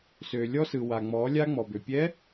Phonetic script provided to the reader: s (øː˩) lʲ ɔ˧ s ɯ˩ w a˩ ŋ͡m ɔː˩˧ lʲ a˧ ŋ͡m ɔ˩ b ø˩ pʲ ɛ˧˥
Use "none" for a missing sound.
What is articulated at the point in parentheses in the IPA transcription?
øː˩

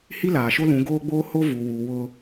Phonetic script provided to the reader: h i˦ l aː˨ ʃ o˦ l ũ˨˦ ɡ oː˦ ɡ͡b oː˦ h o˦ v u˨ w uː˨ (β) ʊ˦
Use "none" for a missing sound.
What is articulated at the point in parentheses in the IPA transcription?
w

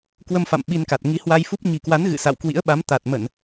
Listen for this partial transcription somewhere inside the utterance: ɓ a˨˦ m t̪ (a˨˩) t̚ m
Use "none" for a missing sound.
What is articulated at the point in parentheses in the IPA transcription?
a˨˩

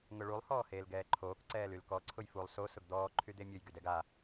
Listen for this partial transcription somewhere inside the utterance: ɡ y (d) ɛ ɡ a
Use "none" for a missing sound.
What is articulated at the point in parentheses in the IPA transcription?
d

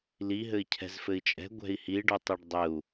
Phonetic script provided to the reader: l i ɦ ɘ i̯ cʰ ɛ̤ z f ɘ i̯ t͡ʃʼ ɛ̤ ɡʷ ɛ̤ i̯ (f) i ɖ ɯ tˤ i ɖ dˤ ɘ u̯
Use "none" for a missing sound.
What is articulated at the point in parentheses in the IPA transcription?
h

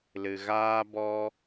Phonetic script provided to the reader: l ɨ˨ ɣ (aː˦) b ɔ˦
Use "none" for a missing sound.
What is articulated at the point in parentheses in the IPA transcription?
aː˦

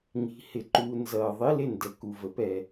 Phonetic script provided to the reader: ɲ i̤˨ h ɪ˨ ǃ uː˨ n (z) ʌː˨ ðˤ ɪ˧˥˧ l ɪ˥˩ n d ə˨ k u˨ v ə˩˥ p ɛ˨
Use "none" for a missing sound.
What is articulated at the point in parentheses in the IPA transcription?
z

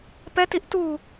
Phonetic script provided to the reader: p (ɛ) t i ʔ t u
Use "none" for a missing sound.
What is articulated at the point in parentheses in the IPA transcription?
ɛ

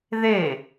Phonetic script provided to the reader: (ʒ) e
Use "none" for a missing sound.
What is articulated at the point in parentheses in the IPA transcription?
ð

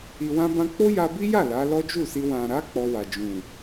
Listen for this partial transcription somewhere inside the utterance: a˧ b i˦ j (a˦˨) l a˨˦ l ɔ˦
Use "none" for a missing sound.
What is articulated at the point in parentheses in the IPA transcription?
a˦˨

